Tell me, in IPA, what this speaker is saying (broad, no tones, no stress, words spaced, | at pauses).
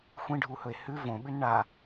xʷĩɖʱuhɵe̯ hʉ võɓʉn ɳa